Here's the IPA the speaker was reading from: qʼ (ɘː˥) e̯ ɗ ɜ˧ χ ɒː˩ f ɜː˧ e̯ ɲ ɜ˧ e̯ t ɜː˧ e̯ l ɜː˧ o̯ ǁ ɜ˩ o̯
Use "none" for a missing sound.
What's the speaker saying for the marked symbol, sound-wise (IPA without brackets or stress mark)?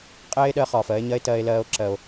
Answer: ɛː˥